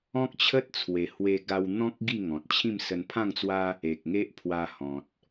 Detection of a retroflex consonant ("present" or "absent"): absent